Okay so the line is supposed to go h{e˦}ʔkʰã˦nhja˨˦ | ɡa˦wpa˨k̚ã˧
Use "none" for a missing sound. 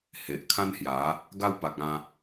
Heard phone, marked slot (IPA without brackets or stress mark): e˨